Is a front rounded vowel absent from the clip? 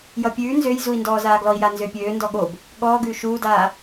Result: no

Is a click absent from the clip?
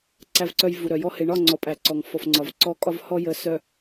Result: no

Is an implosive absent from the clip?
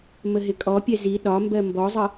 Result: no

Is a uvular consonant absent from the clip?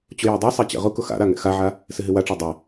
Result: no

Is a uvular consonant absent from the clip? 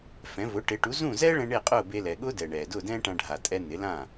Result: no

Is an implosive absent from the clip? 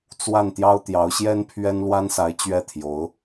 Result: yes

